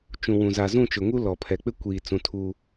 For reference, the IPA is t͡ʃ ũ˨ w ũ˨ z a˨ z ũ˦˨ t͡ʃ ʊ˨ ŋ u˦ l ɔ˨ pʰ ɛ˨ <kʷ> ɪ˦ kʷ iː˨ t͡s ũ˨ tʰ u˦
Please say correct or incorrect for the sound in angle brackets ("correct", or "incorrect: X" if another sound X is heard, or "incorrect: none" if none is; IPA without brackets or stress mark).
incorrect: k͡p